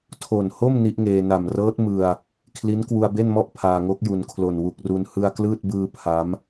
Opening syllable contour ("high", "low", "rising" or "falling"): low